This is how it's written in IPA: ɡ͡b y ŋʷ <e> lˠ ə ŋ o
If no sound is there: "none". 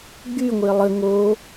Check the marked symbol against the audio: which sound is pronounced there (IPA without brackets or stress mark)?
e